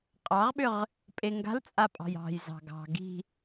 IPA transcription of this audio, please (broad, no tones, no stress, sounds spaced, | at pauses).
qʼ ɑ ʁ ɓ ʏ ʁ | pʼ e ŋ ɡ a̤ l t͡sʼ a pʼ ɑ̤ j ɑ̤ j z ɑ̤ ɡ ɑ̤ ɡ i̤